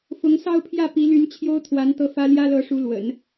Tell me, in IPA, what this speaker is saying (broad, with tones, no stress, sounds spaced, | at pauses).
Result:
f ʊ˧˥ ŋ s ɑ˥˧ ʊ̯ pʰ j ä˥˩ p i˧˥ l y˧˥ n t͡ɕʰ j o˥ ʊ̯ t̪ʰ w a˧˥ n t̪ ɤ˥˩ f ä˥ l j ä˥ l ɤ˧˥ ʂ u˧˥ l w ə̰˨˩˦ n